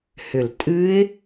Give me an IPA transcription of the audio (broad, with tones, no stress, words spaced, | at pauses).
hʏ˧˩l tʼɨ˦˥ɪ̯